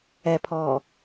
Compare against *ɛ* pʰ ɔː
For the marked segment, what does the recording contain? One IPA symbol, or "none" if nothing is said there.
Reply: ɛ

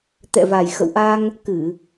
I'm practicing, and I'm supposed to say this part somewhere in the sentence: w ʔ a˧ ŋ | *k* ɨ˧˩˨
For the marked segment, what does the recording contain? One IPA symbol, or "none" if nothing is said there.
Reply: k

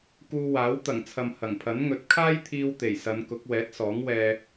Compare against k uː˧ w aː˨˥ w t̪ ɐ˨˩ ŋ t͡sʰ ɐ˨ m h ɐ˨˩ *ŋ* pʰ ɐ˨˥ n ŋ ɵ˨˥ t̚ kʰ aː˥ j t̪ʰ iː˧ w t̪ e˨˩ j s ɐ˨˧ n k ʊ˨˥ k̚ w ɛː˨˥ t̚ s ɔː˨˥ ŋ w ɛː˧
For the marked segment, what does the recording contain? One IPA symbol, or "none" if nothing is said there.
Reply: ŋ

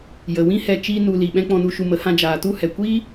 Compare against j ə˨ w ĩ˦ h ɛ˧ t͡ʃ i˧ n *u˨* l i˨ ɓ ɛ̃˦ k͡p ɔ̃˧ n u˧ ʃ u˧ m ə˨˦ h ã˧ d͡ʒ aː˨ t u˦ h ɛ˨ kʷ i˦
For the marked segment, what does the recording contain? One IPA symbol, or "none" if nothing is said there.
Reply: u˨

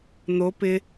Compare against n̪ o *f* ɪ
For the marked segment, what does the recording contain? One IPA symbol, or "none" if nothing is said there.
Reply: p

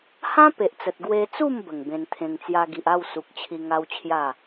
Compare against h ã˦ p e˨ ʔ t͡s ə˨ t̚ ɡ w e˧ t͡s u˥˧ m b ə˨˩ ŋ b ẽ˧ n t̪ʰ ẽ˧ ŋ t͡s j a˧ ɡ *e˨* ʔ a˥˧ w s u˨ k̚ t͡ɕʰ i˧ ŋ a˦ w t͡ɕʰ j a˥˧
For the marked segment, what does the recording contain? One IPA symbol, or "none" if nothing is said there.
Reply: i˨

